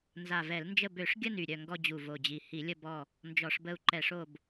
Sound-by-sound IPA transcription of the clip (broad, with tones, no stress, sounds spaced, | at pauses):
n z a˨˩ v ɛ˧˩˧ l n d͡ʒ ə˦˨ b ø˧˩˧ ʂ ɡʲ ə˦˨ n y˨˩ ɾʲ œ˦˨ ŋ ɡ ɔ˦˨ d͡ʑ u˨˩ v o˨˩ d͡ʑ i˨˩ h i˧˩˧ lʲ ə˦˨ b ɔ˦˨ | n d͡ʒ ɔ˧˩˧ ʂ b ə˦˨ u̯ ǃ ɛ˧˩˧ ʂ o˦˨ b